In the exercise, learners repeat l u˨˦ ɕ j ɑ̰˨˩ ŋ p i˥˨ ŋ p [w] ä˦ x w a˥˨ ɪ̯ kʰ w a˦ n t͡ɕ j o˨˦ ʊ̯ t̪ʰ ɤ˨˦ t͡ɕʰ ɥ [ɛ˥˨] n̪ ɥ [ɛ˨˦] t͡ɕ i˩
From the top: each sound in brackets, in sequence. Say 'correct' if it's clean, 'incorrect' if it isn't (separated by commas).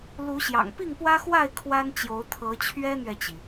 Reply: correct, incorrect, incorrect